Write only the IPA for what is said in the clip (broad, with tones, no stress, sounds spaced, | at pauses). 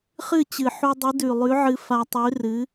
χ ɨ˥˨ t͡ɕ ɨ˨˩ ħ u˧ dˤ ɨ˨˥ d ʉ˨˩ lˠ ʉ˨˥ ʕ ɨ˧ f a˧ tˤ ʉ˨˥ r ɨ˨˥